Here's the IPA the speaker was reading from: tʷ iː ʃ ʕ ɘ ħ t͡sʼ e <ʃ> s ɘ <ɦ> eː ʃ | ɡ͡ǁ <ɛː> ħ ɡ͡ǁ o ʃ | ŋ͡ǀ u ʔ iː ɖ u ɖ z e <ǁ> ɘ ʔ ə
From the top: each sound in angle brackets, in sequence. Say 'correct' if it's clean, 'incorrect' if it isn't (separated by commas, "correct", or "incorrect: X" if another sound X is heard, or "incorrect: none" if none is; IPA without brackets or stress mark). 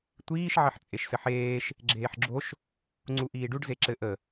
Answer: correct, incorrect: ħ, incorrect: eː, correct